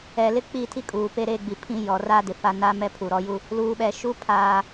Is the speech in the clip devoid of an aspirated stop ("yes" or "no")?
no